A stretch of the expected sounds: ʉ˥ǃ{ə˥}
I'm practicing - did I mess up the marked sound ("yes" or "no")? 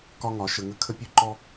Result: yes